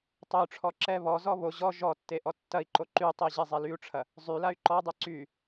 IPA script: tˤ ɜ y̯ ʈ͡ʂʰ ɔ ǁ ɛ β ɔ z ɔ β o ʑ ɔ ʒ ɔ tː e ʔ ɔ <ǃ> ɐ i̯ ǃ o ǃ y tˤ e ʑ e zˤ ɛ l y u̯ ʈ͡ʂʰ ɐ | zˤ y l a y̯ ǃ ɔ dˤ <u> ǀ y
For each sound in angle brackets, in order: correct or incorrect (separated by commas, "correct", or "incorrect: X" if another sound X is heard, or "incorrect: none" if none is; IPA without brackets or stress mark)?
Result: incorrect: tː, incorrect: ʉ